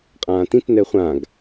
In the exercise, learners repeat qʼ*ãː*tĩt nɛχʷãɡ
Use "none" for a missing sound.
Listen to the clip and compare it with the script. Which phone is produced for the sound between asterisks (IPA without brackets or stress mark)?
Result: ãː